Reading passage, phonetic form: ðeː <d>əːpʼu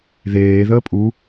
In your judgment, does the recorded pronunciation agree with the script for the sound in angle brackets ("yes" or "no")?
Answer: no